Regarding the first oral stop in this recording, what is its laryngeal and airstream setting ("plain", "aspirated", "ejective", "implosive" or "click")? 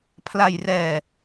aspirated